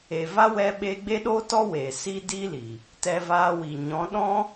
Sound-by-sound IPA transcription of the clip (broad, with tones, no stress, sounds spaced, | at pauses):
e˨ v a˦ w ɛ˧ ɓ e˧ ɡ͡b e˦ ɗ oː˦ t ɔ˦ w eː˨ s i˦ d i˦ l i˨ | t ɛ˧ v aː˧ w i˨ ɲ ɔ̃˨˦ ɗ ɔ̃˦